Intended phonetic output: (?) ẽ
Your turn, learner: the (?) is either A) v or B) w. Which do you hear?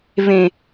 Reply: A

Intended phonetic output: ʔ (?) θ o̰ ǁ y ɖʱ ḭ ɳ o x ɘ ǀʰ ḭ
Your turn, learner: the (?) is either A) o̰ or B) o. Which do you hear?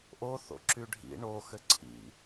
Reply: B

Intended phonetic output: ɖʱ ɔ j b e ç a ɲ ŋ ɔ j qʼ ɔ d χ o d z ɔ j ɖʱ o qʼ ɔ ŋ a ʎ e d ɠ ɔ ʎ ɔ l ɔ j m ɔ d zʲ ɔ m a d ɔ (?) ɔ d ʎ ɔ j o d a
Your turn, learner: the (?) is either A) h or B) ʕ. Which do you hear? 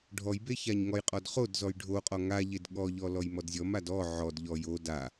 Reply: B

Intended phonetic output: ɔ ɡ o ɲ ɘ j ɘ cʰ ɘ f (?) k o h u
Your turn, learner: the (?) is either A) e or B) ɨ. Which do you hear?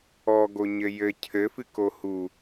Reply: B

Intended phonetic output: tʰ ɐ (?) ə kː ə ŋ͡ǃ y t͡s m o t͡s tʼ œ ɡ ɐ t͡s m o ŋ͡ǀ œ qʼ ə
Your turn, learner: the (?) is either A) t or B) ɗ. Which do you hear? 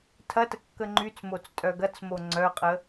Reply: A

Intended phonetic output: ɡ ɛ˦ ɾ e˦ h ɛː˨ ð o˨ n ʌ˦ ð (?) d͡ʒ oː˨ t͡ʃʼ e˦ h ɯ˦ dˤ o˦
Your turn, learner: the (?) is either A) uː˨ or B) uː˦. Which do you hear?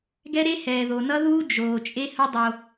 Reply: B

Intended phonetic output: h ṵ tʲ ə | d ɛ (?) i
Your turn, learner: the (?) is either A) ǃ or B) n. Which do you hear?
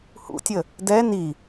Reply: B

